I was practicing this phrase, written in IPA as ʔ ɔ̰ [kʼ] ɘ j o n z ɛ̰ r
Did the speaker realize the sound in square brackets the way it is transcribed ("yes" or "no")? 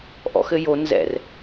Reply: no